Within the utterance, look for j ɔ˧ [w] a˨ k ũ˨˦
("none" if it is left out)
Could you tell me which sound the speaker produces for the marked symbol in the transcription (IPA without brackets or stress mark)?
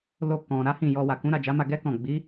w